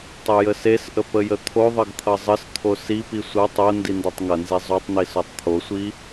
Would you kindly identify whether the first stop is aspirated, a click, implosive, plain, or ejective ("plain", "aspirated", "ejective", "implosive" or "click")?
plain